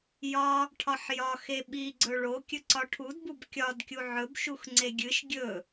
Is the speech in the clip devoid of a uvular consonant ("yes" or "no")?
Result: yes